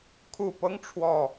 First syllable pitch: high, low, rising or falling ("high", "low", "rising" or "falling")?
low